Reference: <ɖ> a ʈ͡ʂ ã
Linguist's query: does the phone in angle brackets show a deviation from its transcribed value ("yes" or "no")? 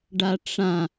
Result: no